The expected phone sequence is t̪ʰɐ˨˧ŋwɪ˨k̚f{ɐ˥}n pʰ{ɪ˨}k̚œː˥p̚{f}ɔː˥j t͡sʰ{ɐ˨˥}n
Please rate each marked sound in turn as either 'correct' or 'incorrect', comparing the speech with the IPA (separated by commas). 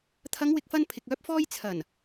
incorrect, correct, correct, incorrect